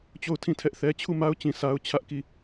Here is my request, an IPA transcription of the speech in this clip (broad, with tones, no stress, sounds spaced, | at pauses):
t͡ɕ o˦˨ ʊ̯ tʰ ĩ˦˨ tʰ ɛ˦ ʔ θ ɛ˦ t͡ɕʰ u˦˨ m a˦ ʊ̯ t͡ɕ ĩ˨ s a˦ ʊ̯ t͡ɕʰ ä˦ ʔ k i˦˨